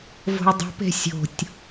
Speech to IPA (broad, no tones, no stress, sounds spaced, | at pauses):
v o̤ y̯ dˤ o̤ p e̤ sʲ o̤ tʲ